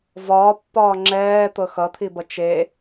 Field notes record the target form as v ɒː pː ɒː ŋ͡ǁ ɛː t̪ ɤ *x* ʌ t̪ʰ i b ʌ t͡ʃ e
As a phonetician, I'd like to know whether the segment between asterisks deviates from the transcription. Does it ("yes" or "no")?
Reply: no